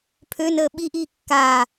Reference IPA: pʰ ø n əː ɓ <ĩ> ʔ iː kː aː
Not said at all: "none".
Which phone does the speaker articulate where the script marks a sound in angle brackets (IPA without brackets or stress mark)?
i